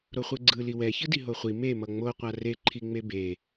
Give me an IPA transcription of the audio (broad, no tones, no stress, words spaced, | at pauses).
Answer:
ɾoχʷɯɡ͡ǀɯ liwɛ çɯdiɦoχʷi me mʌŋ͡mo qʷare ǃʰiŋ͡mebe